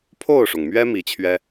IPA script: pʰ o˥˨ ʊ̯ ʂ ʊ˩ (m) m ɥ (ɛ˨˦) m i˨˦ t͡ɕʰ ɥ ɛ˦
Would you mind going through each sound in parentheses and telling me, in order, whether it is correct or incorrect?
incorrect: ŋ, incorrect: ɛ˦

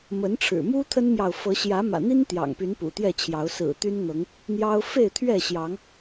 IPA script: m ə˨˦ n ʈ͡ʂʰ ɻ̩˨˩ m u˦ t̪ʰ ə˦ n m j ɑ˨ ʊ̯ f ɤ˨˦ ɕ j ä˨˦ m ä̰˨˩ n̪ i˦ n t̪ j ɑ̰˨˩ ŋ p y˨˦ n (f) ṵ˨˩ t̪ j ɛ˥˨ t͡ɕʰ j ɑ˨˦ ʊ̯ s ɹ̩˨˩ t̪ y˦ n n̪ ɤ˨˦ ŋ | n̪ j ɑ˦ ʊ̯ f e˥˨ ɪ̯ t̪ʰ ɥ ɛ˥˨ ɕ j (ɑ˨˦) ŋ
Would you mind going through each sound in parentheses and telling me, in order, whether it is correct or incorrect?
incorrect: p, correct

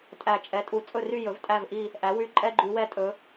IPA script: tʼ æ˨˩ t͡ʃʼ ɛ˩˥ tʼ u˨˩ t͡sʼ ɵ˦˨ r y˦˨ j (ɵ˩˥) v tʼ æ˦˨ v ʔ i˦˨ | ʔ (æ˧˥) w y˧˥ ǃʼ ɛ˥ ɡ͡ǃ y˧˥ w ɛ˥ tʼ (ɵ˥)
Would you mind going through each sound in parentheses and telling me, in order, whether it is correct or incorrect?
correct, incorrect: æ˩˥, incorrect: ɵ˧˥

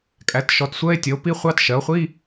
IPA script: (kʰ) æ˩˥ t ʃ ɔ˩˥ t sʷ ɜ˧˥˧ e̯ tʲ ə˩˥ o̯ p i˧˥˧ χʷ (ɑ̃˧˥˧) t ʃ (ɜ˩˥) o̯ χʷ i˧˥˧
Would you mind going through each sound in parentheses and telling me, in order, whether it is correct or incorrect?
incorrect: kʼ, incorrect: ɑ˧˥˧, correct

